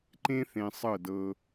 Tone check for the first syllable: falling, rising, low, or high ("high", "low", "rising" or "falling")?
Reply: high